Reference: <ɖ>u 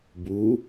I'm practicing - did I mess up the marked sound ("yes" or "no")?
yes